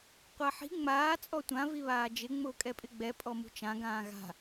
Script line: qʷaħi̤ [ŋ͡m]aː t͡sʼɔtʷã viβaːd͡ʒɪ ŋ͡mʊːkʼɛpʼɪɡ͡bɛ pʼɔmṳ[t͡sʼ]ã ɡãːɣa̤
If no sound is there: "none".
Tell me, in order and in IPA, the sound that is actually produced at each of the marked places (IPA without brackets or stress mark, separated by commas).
ŋ͡m, t͡ʃ